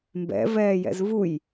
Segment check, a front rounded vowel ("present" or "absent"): absent